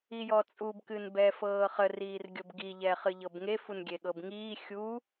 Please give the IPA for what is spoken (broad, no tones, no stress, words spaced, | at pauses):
ijɔt͡sʼub kɨnbɛːfɤːχə riːrɡʲɤbɡi ʎɛːχɨʎɤbŋe funɡʲeɠɤbŋiː xʲu